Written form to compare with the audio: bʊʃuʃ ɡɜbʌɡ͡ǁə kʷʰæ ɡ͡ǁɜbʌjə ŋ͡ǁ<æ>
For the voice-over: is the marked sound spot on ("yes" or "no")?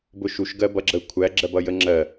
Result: no